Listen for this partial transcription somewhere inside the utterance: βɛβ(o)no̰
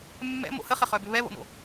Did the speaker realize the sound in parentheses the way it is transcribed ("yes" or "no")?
no